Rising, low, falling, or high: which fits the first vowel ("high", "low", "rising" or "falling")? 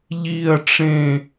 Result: falling